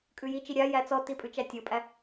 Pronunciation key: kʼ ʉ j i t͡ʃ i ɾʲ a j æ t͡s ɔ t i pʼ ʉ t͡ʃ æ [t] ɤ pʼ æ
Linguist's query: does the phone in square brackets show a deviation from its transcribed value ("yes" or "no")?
yes